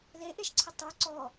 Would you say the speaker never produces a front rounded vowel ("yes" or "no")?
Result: yes